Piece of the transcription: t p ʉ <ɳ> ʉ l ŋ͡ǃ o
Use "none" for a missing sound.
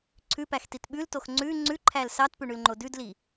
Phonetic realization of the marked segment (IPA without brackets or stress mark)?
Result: ɳ